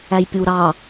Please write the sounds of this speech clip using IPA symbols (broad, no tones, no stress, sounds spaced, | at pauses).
æ j pʲ u ɾ ɑ